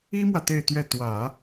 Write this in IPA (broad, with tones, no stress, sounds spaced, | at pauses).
i˥ m w ä˨ t̪ e˥˧ ɪ̯ t̪ ɥ ɛ˥˩ t̪ w ä˨˩˦